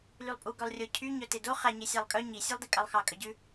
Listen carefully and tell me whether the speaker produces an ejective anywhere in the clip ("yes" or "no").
yes